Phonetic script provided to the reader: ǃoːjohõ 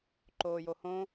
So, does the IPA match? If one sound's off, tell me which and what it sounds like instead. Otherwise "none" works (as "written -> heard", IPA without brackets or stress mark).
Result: none